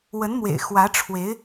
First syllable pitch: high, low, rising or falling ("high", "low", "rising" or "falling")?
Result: rising